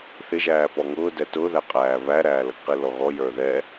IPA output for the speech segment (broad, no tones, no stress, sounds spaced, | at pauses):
θ ɪ ʒ æː p ɔ ŋ ʊː d ɛ t ʊ ð æ qʼ æː β æ ɾ æː l ʌ ɡ q i l ɔ ɣ ɔ j ə˞ ð ɛ